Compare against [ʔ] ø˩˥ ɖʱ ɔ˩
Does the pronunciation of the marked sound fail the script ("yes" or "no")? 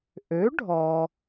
no